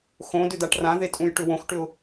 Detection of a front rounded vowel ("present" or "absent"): present